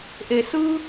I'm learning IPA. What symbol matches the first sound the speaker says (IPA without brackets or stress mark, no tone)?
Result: ʔ